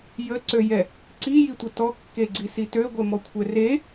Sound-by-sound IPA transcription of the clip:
jəǀøjɛ | ǀijitʷə tɔkːeɡ͡ǀisi tøɡʷɛmɔkʷʰɛ re

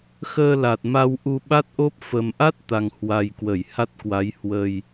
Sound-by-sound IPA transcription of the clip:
xəː˧la˨˩t̚ ma˧wʔu˧ ɓa˦˥t̚ʔo˦˥p̚ fə˨˩mʔa˦˥t̚t̪a˨˩ŋ hwa˨˩jkwə˧˩j ha˦˥t̚kwa˨˦j hwə˨˩j

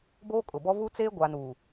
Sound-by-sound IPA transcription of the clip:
boː˦kʼʊ˨bɔ˦ vu˦t͡seː˦ ɡʷa˨nuː˨

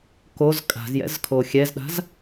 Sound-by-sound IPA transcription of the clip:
koz kʼa̤zjɛ̰z kʰoxʲɛzɗa̤z

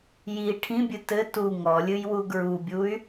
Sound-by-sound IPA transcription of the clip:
ji ʈʰĩbʲɨ tɘ tu ŋɔlʲɨjwu ɡɹubʲuy̯

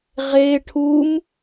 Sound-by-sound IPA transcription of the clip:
ʁe ʈʰum

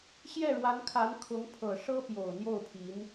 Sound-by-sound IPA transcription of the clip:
ɕjɛ˥˩ɻwa˧˥nkʰa˧˥n kʰʊ˧˥ŋ pʰɤ˨˩ʂɤ˥ pjo˨˩ʊ̯n̪jo˥˩ʊ̯pʰi˧˥n

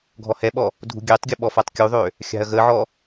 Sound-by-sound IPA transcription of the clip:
ɡʱɔhɛɓɔ | dʱṳɡʲɛtˤɡʲʊ ɓɔfatˤkʲuðˤø | xʲa̤ɐ̯ɣəʕɔ

